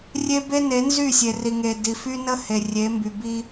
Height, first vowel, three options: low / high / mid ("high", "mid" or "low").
mid